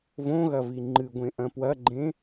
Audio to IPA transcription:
v õ ɣ ɐ v i ŋ͡ǃ ɨ ɡʷ ẽ ʔ ɐ̃ p w ɐ ɡ͡ǃ ẽ

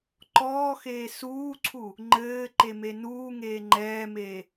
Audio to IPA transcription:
ǃ ɔː x eː s uː ǀʰ u | ŋ͡ǃ ɘː ǃ e m e n uː ŋ eː ŋ͡ǃ ɛː m eː

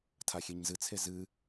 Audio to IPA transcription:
tʰ a xʲ e ɲ z ɨ t͡sʰ e z ɨ

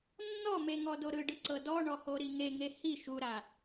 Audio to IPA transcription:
nː ɔ m e ŋ ɔ d o ɾ ɯ ɖ ɯ ǀ ɤ d ɔ ɳ ɔ h o ɾ i ŋ e ŋ e h i ʃ u ɾ a

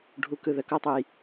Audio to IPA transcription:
ɖʱ u˨ k ɯ˨ ð ə˨ k o˦ tˤ u˨ j

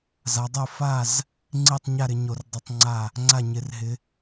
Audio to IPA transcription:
z a˨˦ dˤ o˥˨ f a˥˨ z | ŋ͡ǀ i˥˨ tˤ ɲ a˥˨ ɾ ɪ˨˦ ɲ o˨˦ r dˤ i˨˦ tˤ ŋ͡ǀ a˥˨ | ŋ͡ǀ a˥˨ ɲ ɪ˨˦ r ɦ ɪ˨˦

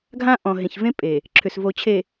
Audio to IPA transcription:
ɡʱ ã˦ ʔ ɔ̃˨ ɦ ẽ˨ ç v ẽ˦ pʼ e˨ | ǁʰ ʏ˨ s v o˨ t͡ɕʰ e˨

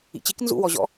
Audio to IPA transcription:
ḭ t͡ɕ i k n z ṵ w ɔ ʑ ɔ̰

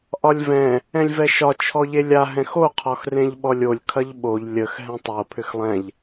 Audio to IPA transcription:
ʔ ɒ lʲ v ɛ̃ | ɛ̃ lʲ v ɛ ʃ ɒ t͡ʃʰ ɔ ʎ e lʲ a ɦ ɛ̃ x o qʰ ɒ x r ẽ ʎ ɓ ɔ lʲ o lʲ kʰ ɐ ʎ ɓ o ʎ lʲ ə x ɦ ɛ̃ tˤ o pʰ ʏ x lˠ ɛ̃ ʎ

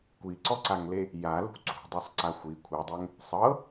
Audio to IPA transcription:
kʷ i ǀ ɔ ǀ a ŋ l e | j a l ṳ ǀ ṳ dˤ ɤ sˤ ǀ a xʷ i kʷʰ ɤ dˤ ɛ ŋ | sˤ ɤ

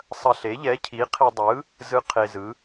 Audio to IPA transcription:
sˤ ɐ˧ ɬ e˨˥ ʎ ɛ˨˥ cʰ i˨˥ qʰ i˧ dˤ ɯ˨˥ | z ɯ˧ qʰ e˧ z ɯ˨˥

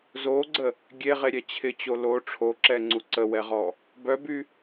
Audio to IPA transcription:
z o ɡ͡ǀ ə | ɡʲ e ʁ e ɾʲ ɛ t͡ɕʰ ɪ t͡ɕ o l o ʈ͡ʂʰ o ǁ ɛ ŋ͡ǀ u ǀ ə w ɛ ʁ ɔ | b œ b y

